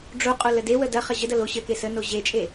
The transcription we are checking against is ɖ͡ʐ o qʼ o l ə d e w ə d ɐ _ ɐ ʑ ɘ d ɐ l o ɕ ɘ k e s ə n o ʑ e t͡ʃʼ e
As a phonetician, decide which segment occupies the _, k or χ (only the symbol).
χ